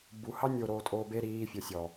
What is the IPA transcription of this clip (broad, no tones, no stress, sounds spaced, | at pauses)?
b u h ɑ nʲ o ɾ oː tʼ oː b e ɾ iː fʲ o sʲ ɔ